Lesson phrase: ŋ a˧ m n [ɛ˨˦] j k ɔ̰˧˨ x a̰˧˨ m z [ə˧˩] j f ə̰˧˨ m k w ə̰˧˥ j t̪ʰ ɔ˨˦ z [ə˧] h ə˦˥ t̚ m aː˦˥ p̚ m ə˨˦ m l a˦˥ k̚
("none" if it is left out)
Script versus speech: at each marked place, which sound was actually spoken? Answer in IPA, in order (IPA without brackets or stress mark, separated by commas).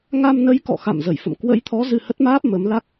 ə˨˦, ə˧˩, ɨ˧